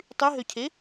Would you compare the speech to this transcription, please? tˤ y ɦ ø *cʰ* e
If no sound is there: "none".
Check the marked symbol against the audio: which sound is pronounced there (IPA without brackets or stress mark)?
cʰ